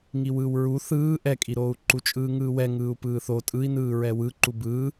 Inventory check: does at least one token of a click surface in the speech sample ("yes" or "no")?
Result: yes